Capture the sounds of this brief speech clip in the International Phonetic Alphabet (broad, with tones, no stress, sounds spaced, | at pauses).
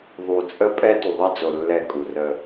ðˤ u˨ t͡sʼ ə˦ pʼ ɛ˦ t u˨ ðˤ ɛ˦ d͡z o˨ lː ɛ˦˨ kʼ u˨ r ə˦